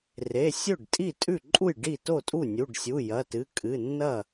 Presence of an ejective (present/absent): present